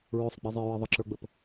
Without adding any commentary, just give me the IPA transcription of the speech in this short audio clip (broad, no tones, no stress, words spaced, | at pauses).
ɹʊsˤ ɡ͡bizˤɪɹi ðˤəǁə˞ɡ͡bəp